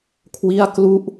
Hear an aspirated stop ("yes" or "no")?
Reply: yes